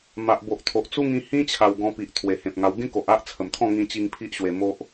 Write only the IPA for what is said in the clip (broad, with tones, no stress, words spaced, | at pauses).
ma˨ʔbo˨ʔt̪ʰo˨ʔ t͡su˦ŋĩ˧hĩ˦t͡ɕʰa˨˩w ɡɔ̃˧pi˨ʔ t̪ʰwe˨˩hẽ˨p̚ŋa˧w ɡẽ˦ko˨ʔ a˦ʔt͡sʰə˨˩mt̪ʰɔ̃˥˧ ŋĩ˧t͡ɕi˧ŋ pʰi˦ʔɕwe˧mo˦ʔ